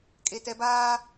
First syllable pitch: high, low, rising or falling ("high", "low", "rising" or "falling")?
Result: low